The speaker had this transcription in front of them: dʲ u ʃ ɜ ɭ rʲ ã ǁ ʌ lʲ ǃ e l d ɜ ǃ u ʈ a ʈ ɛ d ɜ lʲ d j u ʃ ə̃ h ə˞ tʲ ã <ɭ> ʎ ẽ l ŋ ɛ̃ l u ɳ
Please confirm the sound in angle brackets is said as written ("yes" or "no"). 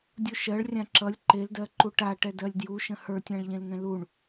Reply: yes